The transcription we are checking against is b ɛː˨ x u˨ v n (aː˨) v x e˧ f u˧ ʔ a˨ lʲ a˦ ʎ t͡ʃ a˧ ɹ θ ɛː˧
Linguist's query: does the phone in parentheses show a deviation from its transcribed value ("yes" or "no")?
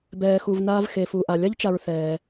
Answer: yes